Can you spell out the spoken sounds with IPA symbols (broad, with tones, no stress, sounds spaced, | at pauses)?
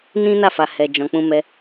n ĩ˦ n a˦˨ f a˨ h ɛ˨ d͡ʒ ɔ̃˨ k͡p ũ˧ m ɛ˧